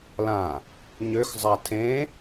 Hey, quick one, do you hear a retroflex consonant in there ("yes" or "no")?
no